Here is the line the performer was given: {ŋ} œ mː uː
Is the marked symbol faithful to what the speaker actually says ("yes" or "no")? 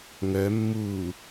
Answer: yes